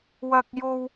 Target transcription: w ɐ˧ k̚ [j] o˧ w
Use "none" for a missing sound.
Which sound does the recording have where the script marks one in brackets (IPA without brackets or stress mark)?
j